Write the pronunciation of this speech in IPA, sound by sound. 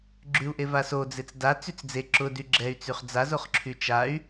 ɡ͡ǁ y u̯ ʔ e v a s o d͡z e t͡s d a t͡s y t͡s d͡z e ǁ ʊ d y ɡ͡ǁ ɛ y̯ t͡s y χ d͡z a z o χ ǁʰ y t͡ʃ a y̯

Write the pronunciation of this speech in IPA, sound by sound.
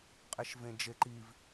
qʼ e ʃ v ẽ d͡ʒ e ǃ i v

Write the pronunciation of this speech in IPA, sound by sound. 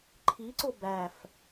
ǃʰ i ǀ o b æ f

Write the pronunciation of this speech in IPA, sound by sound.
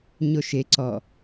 ɲ o ʃ e ǀ ɔ

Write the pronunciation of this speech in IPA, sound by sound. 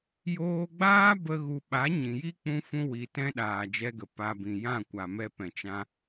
j oː˧ ɡ͡b aː˦ b ə˦ ɣ u˧ ɓ a˨˦ ɲ ĩ˨ j i˦ k͡p ũ˧ f ũ˧ w i˨ t ɛ̃˧ ɗ aː˨ d͡ʒ ɛ˧ ɡ ə˨ p a˨ b ĩ˨ j ã˦˨ kʷ a˨ m ɛ˧ p ɛ̃˨ t͡ʃ ã˧

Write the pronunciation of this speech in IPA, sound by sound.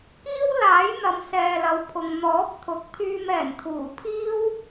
k iː˥ w l aː˨˥ j n̪ ɐ˨˧ m s ɛː˨ l ɐ˨˧ w pʰ ʊ˨ ŋ n̪ ɔː˨˥ p̚ t̪ʰ ʊ˨ k̚ t̪ʰ yː˧ m ɛː˨˩ n t̪ʰ uː˨˩ pʰ iː˥ w

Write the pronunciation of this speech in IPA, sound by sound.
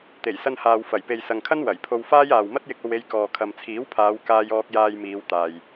t̪ e˨˩ j s ɐ˧ n h aː˨ w f ɐ˨˩ j p e˨ j s ɐ˨ ŋ kʰ ɐ˥ n w ɐ˨˩ j pʰ o˧ w f aː˥ j aː˨ w m ɐ˥ t̚ j ɪ˧ k̚ o˧ w e˧ j k ɔː˨ kʰ ɐ˨ m t͡sʰ iː˨˥ w pʰ aː˨˧ w k aː˧ j ɔː˧ k̚ j aː˧ j m iː˨˧ w t̪ aː˨ j

